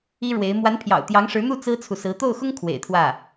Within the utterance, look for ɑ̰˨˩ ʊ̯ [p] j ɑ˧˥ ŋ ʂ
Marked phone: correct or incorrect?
incorrect